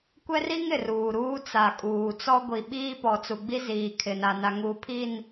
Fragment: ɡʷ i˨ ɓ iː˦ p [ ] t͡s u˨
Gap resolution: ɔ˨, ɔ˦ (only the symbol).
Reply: ɔ˨